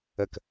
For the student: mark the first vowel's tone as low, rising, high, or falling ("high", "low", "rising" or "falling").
falling